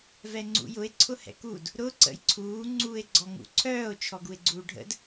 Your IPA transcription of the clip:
v ɛ ŋ͡ǀ ṵ j ʊ e̯ ǀʰ ʊ h ɛ̰ k u d | ɾ ʊ ǀ ə̰ j ǀʰ uː ŋ͡ǀ uː e̯ ɡ͡ǀ ɔ ŋ ṵ ǀʰ œː o̯ t͡ʃʰ ɔ ɡ u e̯ ɡ͡ǀ uː ɖʱ ə̰ d

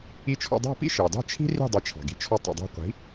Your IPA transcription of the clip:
i˧ t͡ʃʰ ɔ̰˧ dˤ ɑ̤˥˩ p ḭ˥ ʃ ɑ˩ d ɑ̤˥˩ t͡ʃʰ i̤˥ r i̤˥˩ dˤ i˩˥ t͡ʃʰ ɑ̤˩ ɡ i̤˩˥ t͡ʃʰ ɔ˧ tˤ ḭ˩ dˤ ɑ̤˧ qʷ i̤˩˥

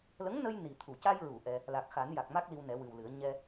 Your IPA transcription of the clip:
l ə˧˥ ŋ n ə˧ j n i˨˩ t̪ʰ u˨˩˨ c a˧ j ɹ u˨˩˨ ʔ ɛ˧ | l a˨˩ k̚ x a˨˩˦ n j a˨˩ k̚ m a˦˥ k̚ l i˧ w n ɛ˨˩˦ w ɨ˨˩ w l ɨ˨˩˦ ə̯ ɲ ɛ˧

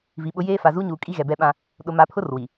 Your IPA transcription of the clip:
v i˨ ɓ ʊ˦ j eː˦ f a˨ z uː˦ ɲ uː˨ kʼ i˦ ɣ ɛ˨ b ɛ˦ ɓ ã˦ | ɗ ʊ˨ m a˨ pʰ ʊ˦ r w i˨

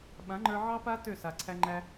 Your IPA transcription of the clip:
ɓ ã˨˦ ŋ͡ǃ ə˞˧ ʕ ɑ˦ p a˦ t ø˦˨ s a˨ ǀʰ æ˧ ŋ͡ǃ æ˧

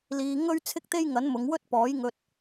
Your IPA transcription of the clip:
l iː˧ ŋ ɵ˥ ɥ t͡sʰ ɪ˥ k̚ t̪ e˥ j ŋ ɐ˨˥ n m ʊ˨˧ ŋ w ɵ˥ t̚ p ɔː˨˥ j ŋ ɵ˧ t̚

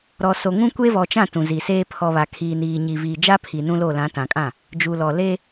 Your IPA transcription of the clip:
ɾ ɔ˨ s o˨ ŋ ũ˦ kʷ eː˦ v ɔ˨ t͡ʃ ã˦˨ t ũ˨ z i˨ s eː˦ pʰ ɔ˨ β a˨ kʰ iː˨ n iː˨ ɲ i˨ v iː˨ d͡ʒ a˦ pʰ i˨ n ũ˦ l o˦˨ l ã˨˦ t ã˨ kʼ ã˦˨ | d͡ʒ u˨ l ɔ˨ l eː˦

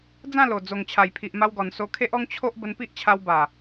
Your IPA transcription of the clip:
d͡z ã˥˧ l o˨˩ d͡z o˨˩ ŋ t͡ɕʰ a˨˩ j pʰ i˨ ʔ m a˧ w ɡ ɔ˨˩ n s o˧ kʰ e˦ ʔ ɔ˦ ŋ t͡ɕʰ o˦ ʔ b ə˧ n p i˦ ʔ t͡ɕʰ a˧ w b a˨˩

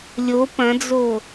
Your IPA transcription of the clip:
lʲ o p ɐ̃ d͡z o

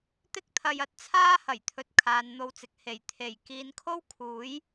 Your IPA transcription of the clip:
t̪ ɪ˥ k̚ t̪ʰ ɐ˧ j ɐ˧ t̚ t͡sʰ aː˥ h ɐ˨˩ j t̪ʰ ɵ˨ t̚ kʰ aː˨ n n̪ o˧ w t͡s ɪ˨ k̚ h e˨˩ j t̪ʰ e˨˩ j k iː˨˧ n kʰ o˥ w kʰ uː˨˥ j

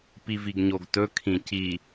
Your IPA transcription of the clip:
p i v i ɡ ɲ o ɡ t ɵ kʰ ĩ c i

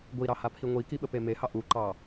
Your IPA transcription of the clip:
ɡʷ i ɾ ɑ h a pʰ i ŋʷ i k i ɓ ə p e m e h ɑ ʔ u ǃ ɑ

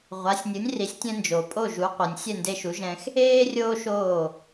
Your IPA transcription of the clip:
ʁʷ a˩˥ sʲ nʲ ɯ˩˥ nʲ r i˩˥ sʲ tʲ ɛ̃˧ n d͡ʒ o˩ pʼ o˥˩ ʒ u˩˥ qʷ ɯ˩ nʲ sʲ ɛ˥˩ n d e˧ ʃ u˩˥ ʒ ɛ̃˧ x | eː˥ rʲ oː˥ ʃ oː˥˩

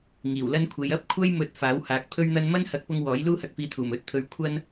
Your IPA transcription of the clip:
ŋ iː˨˩ w l ɐ˥ n kʷʰ e˨˧ j ɐ˥ p̚ kʷʰ ɐ˥ j m ɵ˨˥ t̚ f aː˨˥ w h aː˨˥ k̚ pʰ ɵ˥ ɥ n̪ ɐ˥ n m ɐ˥ n h ɐ˨˥ k̚ p ʊ˧ ŋ w ɔː˨˥ j l uː˥ h ɐ˧ k̚ f iː˧ t̪ʰ uː˨˩ m ɵ˨˥ t̚ t̪ʰ ɵ˨ ɥ kʷʰ ɐ˥ n

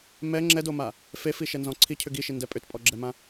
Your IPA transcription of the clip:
m ɛ ŋ͡ǁ ɛ d o m a | f e f i ʃ ɛ n z ɔ̃ ǀʰ i cʰ ʏ ɡ i ʃ i n d ɛ pʼ ʏ t pʼ ɔ ɡ͡ǁ ɛ m ã

